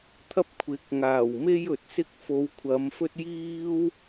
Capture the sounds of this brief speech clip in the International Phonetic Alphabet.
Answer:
t̪ʰɐ˥p̚kʷʰɪ˨k̚ŋaː˨˩wme˥j ɵ˨t̚sɪ˥k̚ fo˨˧wkʷʰɐ˨˧m fɵ˥t̚jiː˥w

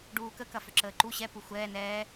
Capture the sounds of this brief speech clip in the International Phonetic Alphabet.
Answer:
ɖuːkə kɐfʏǁəːǃu ɕɛ puxʷɛː nɛː

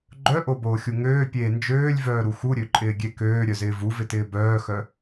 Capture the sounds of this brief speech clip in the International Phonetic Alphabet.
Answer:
ɡ͡ǃœʔoboːxʲu ŋøːpʲeː nd͡ʒøːlʲvœːɾu xuɾʲøǃʼɪːɡʲe køːɾʲœzɪː vuvɪtɪː bœːxœ

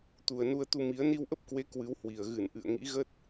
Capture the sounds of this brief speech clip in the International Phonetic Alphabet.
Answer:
t̪u˨˩ə̯nu˧ə̯t̪u˧mi˨˦ə̯ ni˧wʔə˦˥p̚kwe˨˦ kwɨ˨˦whwi˨˩ə̯ ɣɨ˧˩n ʔɨ̰˧˨ə̯ŋḭ˧˥ɣə˦˥t̚

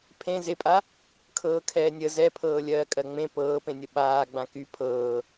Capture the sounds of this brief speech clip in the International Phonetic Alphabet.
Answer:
pʰẽ zepʼa | kʰɤːkʰɛːnʲə zɛpʰɤː lʲɜːkʼɜŋ͡mẽ pɤːpẽ nʲəɓaː ɡ͡bãky pʰɤː

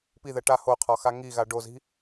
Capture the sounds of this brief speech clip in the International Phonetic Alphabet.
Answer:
piðɛ ʈa hoqʰɒxa ŋiɣa ɖozi̤

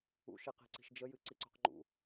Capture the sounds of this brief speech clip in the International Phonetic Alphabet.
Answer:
ṵʃiqi̤ǀi̤ʃ d͡ʒəjɨǀiǀo̤q ŋ͡ǃṵ

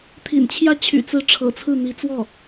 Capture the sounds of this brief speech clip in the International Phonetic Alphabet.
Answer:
t̪ʰḭ˨˩nt͡ɕʰjä˥˩ t͡ɕʰy̰˨˩t͡sɹ̩˧˥ ʈ͡ʂʰɤ̰˨˩ t͡sʰɹ̩˥˩n̪i˧˥t͡swɔ˥˩

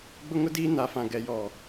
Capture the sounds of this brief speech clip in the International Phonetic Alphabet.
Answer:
ɡ͡bʊ˦ŋʊ˦diː˦ na˨˦fã˨ ɡɛ˨ jɔ˨

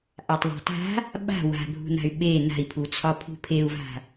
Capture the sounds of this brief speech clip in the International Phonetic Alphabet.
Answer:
ʔatˤðˤa̤ta̤ | ɓa̤ wa̤bʱṳna̤y̯ ɓe na̤i̯pʰut͡sʰɒ pʰṳpʰeu̯va̤

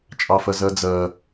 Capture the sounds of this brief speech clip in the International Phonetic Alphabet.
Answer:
t͡ʃʼɑfɜzɜd͡zɜ

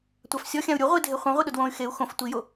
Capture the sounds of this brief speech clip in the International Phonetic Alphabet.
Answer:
tʷafsʲɔxʲãu̯ ɾʲu ʁʷi dʱeχʷã ʁʷiɗʊdwõy̯ xeu̯ xõf tʷijo

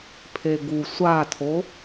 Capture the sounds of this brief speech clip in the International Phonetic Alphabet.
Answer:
pʰeɡu sʷatʰo

